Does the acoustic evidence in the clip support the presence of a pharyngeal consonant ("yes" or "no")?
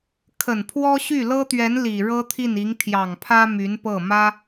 no